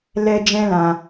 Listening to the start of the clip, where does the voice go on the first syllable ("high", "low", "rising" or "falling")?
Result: high